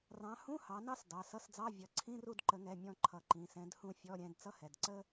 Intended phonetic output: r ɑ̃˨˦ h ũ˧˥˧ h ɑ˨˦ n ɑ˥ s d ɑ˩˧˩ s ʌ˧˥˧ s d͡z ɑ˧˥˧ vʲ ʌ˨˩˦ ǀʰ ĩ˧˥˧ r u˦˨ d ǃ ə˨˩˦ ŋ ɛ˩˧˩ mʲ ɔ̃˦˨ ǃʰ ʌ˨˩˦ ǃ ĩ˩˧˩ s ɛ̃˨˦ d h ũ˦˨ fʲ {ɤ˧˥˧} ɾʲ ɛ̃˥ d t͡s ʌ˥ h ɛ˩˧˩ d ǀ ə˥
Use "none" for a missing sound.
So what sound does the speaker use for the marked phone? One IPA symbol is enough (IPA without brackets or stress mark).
ɔ˧˥˧